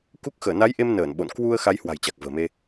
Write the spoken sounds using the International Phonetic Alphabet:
k u˦˥ k̚ x əː˧˩ n a˨˦ j ʔ e˧ m n əː˧˩ n ɓ o̰˧˨ n k w u˧ ə̯ x a˨˦ j h w a̤˨˩ j t͡ɕ a˨˩ k̚ v ə̤ː˨˩ m e˧

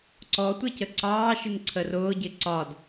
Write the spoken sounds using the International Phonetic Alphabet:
ǀ ɔ tʷ ɪ c ə ǀ ɑː ʃ ɪ n ǀʰ ə r ʊː ɟ ɪ ǀ ɒ d

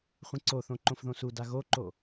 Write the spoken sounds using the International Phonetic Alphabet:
χʷ ĩ ǀ o θ õ ǃ õ f ð õ s u d a ɣ o ǃ o

